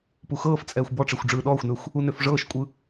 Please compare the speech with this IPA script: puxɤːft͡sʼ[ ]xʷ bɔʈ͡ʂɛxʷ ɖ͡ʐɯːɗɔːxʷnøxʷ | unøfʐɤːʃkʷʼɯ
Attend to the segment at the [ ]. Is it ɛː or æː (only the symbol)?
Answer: ɛː